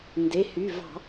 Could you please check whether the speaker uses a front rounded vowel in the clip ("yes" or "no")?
yes